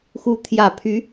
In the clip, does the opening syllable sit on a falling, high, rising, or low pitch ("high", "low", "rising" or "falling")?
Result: rising